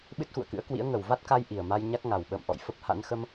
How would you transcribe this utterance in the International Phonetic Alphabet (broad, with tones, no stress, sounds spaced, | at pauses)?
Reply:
ɓ ɨ˦˥ t̚ x ṵ˧˨ ə̯ k ɨ̰˧˥ ə̯ k w ḭ˧˥ ə̯ ŋ ə˨˩ w v a˦˥ t̚ k a˧ j ʔ i˨˩ ə̯ m a˧ j ɲ a˦˥ k̚ ŋ a˨˩ w ɓ ə̰ː˧˨ m ʔ ɔ̰˧˨ j f ə˦˥ p̚ h a̰˧˥ n x ə˧ m